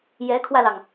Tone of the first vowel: rising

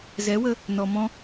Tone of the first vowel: rising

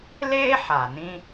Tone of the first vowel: high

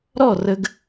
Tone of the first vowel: falling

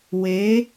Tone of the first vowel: rising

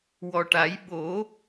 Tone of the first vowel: low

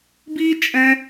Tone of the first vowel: high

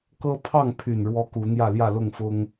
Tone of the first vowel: high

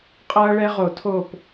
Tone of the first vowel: high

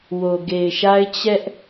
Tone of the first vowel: low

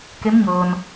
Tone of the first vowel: rising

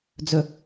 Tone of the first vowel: low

